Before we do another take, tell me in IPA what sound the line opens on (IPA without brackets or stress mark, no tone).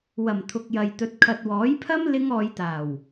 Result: w